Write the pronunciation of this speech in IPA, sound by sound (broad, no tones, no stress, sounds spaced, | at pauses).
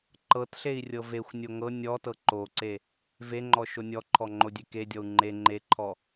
ǃ ɤ t ɬ e i̯ rʲ ɤ v e xʷ nʲ o ŋ ɤ nʲ ɔ t ɤ ǃ o ǀ e | v e ŋ͡ǃ ɔ ʃ o nʲ ɔ ǃʰ ɔ ŋ͡ǃ o dʲ e k e dʲ ɔ u̯ ŋ͡ǃ e ŋ͡ǃ e ǃʰ ɔ